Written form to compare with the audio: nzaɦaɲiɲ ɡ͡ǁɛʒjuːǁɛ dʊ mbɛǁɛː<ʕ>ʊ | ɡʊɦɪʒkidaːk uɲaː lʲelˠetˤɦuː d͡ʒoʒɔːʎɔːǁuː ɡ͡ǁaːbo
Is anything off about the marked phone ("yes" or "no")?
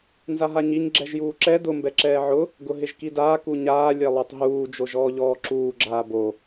no